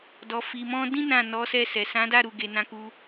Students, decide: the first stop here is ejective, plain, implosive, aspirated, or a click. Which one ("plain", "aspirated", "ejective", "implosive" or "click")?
plain